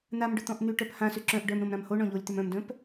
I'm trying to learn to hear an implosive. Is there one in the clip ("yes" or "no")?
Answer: no